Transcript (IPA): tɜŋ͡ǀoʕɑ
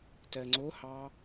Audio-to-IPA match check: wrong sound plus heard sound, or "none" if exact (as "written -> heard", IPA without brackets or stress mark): ʕ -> h